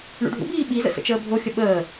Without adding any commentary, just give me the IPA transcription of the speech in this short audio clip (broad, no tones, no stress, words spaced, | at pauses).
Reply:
ɳṵɖʱṵbiː ɓizə̰ sə̰t͡ʃəːbʱoxʲə ɓəː